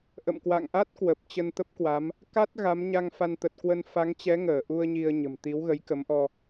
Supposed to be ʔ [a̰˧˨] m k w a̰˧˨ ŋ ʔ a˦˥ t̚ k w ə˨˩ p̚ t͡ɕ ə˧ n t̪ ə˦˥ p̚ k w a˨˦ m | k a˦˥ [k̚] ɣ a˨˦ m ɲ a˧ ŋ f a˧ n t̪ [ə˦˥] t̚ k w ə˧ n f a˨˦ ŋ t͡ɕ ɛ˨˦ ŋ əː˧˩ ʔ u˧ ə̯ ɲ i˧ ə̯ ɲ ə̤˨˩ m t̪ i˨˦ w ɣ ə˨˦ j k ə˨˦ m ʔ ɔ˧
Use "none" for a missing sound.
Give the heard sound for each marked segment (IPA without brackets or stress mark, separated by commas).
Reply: ə̰˧˨, t̚, ə˨˩